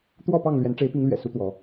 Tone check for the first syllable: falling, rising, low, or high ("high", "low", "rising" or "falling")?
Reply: falling